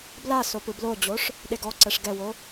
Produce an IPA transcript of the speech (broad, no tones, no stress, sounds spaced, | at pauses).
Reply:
b l a s o p ɯ b l o d͡ʑ o ʂ | ɗ e ɡ ɔ ǀ ɛ ʂ ɡ ɛ w o